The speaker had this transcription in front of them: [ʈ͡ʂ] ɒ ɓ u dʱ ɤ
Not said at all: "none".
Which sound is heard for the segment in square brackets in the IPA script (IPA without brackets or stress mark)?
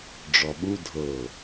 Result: ɖ͡ʐ